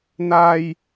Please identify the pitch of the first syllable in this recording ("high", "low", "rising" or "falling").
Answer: high